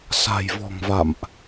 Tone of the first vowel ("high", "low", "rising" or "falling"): low